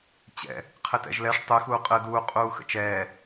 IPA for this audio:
t͡ɕɛ̰ | qʰɘtɛ̰ʒlɛʂ tˤɯ xuːqʼɯːduː qʼuːxə̰t͡ʃɛː

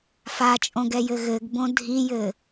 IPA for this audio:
fat͡ʃʼõɡɛjɘ ɣɘɡbõ dʱijɘ

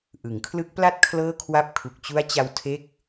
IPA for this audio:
ʔɯ˩˦ŋkʰlɯ˦˥k̚pla˥˩t̚ kʰlɤː˥˩kʰwa˥˩p̚ kʰu˨˩k̚t͡ɕu˦˥a̯t͡ɕa˧w tʰe˦˥k̚

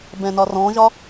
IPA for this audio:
bɛ̃nɒrɔ̃ʒɒ

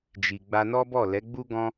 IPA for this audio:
d͡ʒi˨ɡ͡ba˧nɔ˦bɔ˦˨ lɛ˨˦ɡ͡bu˦ɡɔ̃˦

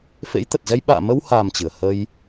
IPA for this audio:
fḛ˧˥jt̪ə˨˩t̚zɛ˧j ɓa̰ː˧˨mə˧wha˨˩m t͡ɕɨ˨˩ə̯ hə˧j

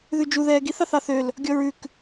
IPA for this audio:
ðʉd͡ʒu ðɛːɡiθ ɑθɑθøl | ɡʲɔɹʉk

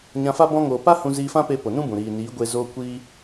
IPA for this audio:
ɲã˧fa˦ bɔ̃˧ŋoː˨pa˦ hũ˧ziː˧fã˦pe˧ po˨nũ˦bũ˨ ɾiː˨niː˨˦ ɡʷe˧ zoː˧ kʷiː˦

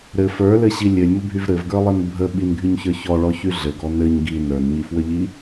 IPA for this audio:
ɾɘ fə˞lɘɕi lʲɘlʲmɘbʱyv ɾɘvɡə˞lˠɘn bʱə ɓinɡʱyɲçə˞ çɔɭɔçy ɮɘɡɔ nɘɲ ɡi nə˞nɲifwəʎi

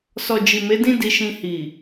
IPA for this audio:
sɔ˨d͡ʒi˨me˨˦dĩ˦ di˧ʃĩ˧ hi˨

